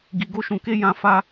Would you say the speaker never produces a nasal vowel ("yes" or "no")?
no